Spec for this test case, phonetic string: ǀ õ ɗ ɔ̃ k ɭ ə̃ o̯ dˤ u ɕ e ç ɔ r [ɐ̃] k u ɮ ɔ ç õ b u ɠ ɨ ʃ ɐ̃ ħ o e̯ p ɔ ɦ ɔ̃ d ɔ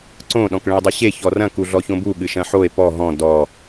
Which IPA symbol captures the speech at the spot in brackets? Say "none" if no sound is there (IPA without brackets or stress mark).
ɐ̃